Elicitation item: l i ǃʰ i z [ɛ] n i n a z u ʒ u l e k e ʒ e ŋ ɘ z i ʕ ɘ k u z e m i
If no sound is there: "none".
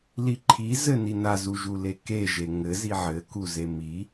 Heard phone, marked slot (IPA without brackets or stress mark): ɘ